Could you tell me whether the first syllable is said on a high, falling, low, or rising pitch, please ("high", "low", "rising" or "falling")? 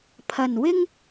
low